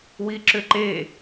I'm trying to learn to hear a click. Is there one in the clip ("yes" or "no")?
yes